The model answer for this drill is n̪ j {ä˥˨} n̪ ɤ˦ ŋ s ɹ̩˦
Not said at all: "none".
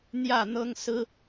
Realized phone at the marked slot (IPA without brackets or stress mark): ä˥˨